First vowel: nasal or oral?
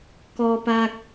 oral